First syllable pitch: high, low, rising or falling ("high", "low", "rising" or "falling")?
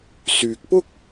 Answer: low